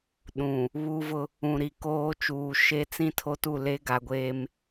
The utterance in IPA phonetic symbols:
ɗũ˨ | βu˦vʊ˦ | ũ˨ɾi˨koː˦t͡ʃuː˨ ʃe˦t͡sĩ˦tʰo˦tu˦˨ le˦ɡa˨ɡʷeː˦m

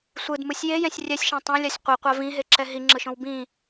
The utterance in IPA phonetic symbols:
sʷɯdmɯsʲ jejɛ̃sʲ rʲɛsʲʃã tˤɛ̃lʲasʲ qʷiqʷa vĩɦeǁɛ ɦiŋ͡ǁɯʃõw bĩ

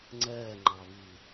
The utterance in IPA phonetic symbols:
ŋ͡ǀɜː ŋ͡ǃɑβiː

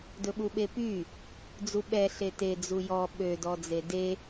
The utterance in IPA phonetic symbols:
dɵɓuɓepy | d͡zuɓɛ ɬete d͡zujɔ ɓø dɔd͡zede

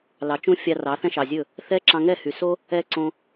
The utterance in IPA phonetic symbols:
lɑ˨t͡ʃũ˦ fʲɑ˧ rɑ˨˦θɛ̃˦ʃɑ˨zʲɵ˦˨ | θɛ˦ ǁɑ̃˧ŋɛ˦˨hy˨ so˦ | ɛ˦ ǀõ˧

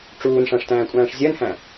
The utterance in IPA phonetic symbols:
ʈ͡ʂuːnʂæ̃ʂtæ̃ːkʷʼæ̃ːʂ zʲɜnhæ̃

